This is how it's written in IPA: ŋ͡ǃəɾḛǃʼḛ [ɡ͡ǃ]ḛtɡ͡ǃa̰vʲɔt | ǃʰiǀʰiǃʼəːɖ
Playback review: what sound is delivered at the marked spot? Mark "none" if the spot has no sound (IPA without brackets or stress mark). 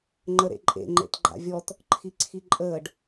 ŋ͡ǃ